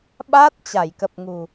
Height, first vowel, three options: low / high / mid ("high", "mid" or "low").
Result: low